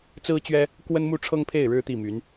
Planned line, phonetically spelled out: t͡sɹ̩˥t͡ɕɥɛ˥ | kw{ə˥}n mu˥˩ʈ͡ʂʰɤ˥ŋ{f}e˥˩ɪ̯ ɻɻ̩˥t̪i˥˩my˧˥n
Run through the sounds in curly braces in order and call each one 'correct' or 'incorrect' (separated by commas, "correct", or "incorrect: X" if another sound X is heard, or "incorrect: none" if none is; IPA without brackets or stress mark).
correct, incorrect: pʰ